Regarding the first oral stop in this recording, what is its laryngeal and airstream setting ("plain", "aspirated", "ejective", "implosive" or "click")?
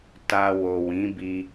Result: plain